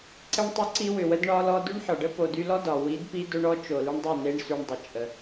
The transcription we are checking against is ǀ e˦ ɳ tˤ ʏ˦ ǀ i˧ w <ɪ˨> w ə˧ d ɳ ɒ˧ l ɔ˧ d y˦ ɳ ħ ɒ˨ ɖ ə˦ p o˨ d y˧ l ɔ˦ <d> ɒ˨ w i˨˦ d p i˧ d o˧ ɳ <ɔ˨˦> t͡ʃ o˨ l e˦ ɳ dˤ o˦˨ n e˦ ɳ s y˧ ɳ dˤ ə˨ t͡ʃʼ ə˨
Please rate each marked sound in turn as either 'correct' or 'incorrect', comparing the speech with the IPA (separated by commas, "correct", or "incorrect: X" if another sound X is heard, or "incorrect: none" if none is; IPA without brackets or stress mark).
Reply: incorrect: ʏ˨, correct, correct